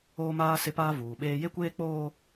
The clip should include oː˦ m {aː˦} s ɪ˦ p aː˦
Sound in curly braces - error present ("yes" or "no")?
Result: no